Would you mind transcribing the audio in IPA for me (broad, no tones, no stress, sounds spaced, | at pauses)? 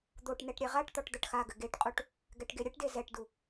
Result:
d̪ o ʈ n ɛ ʈ ɾʲ ɛ ʁ a ʈ t̪ ɔ ʈ d̪ ɐ ʈ x a ɡ ɘ ɡ e ʈ qʼ u ʈ | ɡ ɛ ʈ ɡ e ɾʲ ɘ ʈ d e z ɛ ʈ d u